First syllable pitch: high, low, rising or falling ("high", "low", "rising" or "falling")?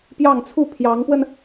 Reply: falling